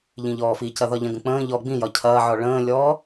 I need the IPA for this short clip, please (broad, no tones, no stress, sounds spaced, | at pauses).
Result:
ʎ ĩ ʎ ɔː f i c ɐ ð ɒ ʎ ɐ̃ ɡ ə̃ k͡p ə̃ː ʎ ɔ ɡ͡b ĩ j ɒ cʰ ɐː ʕ ɔ ɭ ə̃ː lʲ ɔː